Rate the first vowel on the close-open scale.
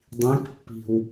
close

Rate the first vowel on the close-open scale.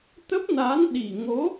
mid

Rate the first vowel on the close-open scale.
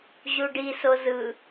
close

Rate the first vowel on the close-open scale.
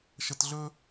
mid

